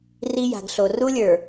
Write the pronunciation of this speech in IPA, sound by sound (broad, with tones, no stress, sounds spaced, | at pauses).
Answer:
r i˦ j a̤˨ ɡ ɬ o˨ r u˦ lʲ ə˞˨